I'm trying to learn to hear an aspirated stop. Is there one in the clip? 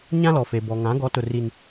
no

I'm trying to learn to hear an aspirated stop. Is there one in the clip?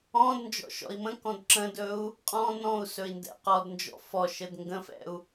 no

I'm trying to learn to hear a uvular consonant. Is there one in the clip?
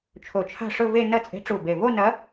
no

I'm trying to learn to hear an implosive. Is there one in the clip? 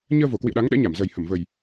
yes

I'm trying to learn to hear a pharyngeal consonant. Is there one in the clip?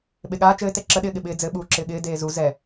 no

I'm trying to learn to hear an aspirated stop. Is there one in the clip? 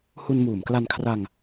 yes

